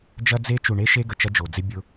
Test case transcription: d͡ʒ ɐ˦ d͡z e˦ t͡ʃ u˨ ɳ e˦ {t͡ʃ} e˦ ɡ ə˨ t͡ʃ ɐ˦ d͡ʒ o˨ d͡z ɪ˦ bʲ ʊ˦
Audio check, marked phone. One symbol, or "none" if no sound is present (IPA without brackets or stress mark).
ʃ